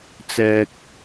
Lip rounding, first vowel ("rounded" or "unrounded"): unrounded